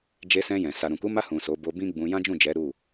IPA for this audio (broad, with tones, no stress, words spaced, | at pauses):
d͡ʒe˧sɛ̃˧ jɛ̃˨ sa˨ɾũ˨ ku˨˦ma˧hũ˨ so˨˦bo˧bĩ˦ ɡ͡bũ˧ jã˦d͡ʒũ˦˨d͡ʒɛ˨˦ ɾu˦˨